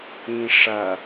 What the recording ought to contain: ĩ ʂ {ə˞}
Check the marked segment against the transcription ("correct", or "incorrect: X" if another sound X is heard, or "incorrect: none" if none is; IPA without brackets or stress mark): incorrect: ɐ